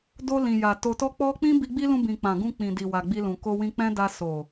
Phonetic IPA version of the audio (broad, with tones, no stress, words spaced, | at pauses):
do˧ lĩ˨ja˨ to˨tɔ˧k͡pɔ˧k͡pĩ˦ bi˧ɡ͡bi˦lũ˧bĩ˨ k͡pã˨ɡũ˧ k͡pĩ˨di˨ wa˨ɡ͡bi˧lũ˨ ko˧wĩ˧k͡pɛ̃˦da˧ so˨